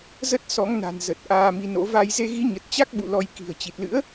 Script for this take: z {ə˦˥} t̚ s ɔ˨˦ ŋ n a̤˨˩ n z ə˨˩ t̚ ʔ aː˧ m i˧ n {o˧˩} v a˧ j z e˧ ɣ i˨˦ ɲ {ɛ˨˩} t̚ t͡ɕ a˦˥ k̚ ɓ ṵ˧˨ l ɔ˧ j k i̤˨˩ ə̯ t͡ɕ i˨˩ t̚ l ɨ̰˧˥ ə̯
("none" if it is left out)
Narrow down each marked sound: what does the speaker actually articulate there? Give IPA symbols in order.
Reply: ə˦˥, o̰˧˥, ə˨˩

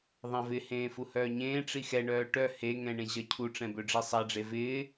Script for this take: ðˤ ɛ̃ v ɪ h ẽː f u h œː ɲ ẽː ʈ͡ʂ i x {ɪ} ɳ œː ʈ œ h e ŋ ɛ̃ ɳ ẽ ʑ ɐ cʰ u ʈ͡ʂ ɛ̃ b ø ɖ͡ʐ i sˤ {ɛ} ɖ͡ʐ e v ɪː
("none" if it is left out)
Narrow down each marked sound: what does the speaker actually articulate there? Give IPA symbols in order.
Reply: ɛ, ɛ

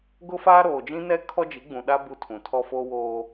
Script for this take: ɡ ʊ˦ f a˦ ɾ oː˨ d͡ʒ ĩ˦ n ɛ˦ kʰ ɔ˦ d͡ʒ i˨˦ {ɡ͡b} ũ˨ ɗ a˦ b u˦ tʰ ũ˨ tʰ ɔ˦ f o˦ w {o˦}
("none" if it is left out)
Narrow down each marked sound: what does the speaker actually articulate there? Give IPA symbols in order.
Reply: ɡ͡b, oː˦

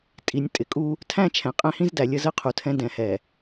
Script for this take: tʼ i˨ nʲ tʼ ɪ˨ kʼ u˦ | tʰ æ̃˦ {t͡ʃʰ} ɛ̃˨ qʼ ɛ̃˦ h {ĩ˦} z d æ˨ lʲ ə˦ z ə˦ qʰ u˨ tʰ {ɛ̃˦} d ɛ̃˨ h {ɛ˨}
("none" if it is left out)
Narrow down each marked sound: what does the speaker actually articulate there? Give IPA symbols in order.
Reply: t͡ʃʰ, ĩ˦, ɛ̃˦, ɛ˨

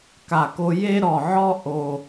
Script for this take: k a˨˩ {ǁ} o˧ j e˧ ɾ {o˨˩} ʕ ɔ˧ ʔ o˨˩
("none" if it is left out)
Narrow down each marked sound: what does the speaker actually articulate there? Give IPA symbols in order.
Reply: k, ɔ˨˩

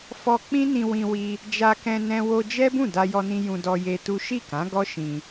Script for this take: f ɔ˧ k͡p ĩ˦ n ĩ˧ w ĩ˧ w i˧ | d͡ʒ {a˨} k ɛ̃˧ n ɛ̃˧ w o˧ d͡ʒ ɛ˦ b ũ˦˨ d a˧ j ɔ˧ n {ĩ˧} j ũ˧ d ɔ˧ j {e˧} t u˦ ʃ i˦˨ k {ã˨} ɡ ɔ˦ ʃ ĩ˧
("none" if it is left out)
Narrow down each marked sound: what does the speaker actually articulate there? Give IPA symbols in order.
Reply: a˧, ĩ˧, e˧, ã˨˦

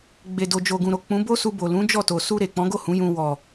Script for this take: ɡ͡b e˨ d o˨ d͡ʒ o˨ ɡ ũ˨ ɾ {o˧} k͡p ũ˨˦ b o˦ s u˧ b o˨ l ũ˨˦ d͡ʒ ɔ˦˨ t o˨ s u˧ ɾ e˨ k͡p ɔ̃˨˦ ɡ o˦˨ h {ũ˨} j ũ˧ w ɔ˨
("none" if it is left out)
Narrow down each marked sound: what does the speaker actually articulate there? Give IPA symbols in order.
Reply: o˨, ũ˨˦

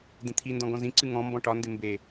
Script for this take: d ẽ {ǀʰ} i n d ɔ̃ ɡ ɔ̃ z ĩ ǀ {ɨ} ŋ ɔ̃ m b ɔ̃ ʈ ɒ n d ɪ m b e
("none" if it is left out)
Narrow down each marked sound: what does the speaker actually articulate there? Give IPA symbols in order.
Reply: t̪ʰ, ɨ

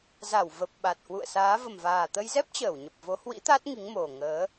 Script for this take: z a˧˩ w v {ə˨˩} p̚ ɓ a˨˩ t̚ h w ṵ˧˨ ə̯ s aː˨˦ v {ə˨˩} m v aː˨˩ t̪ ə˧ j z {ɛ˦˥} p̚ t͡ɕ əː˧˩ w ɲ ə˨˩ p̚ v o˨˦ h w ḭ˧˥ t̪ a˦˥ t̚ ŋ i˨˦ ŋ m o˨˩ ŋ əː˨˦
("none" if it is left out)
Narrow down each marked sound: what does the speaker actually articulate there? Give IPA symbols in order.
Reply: ə˨˩, ə˨˩, ɛ˦˥

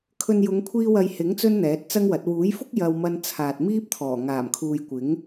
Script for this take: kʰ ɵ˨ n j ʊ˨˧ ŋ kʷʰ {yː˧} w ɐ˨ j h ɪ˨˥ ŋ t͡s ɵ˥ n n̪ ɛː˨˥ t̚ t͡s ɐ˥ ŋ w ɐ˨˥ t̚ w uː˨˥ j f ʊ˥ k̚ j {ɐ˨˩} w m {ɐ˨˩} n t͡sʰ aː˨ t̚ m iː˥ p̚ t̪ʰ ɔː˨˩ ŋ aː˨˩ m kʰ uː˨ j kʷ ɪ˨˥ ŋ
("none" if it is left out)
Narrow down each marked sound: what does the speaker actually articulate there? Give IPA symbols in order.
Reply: iː˧, ɐ˧, ɐ˧

